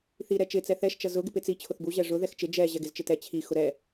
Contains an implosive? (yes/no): no